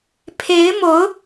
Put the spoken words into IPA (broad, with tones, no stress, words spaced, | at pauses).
pʰe˧˥ɪ̯ mo˧˥ʊ̯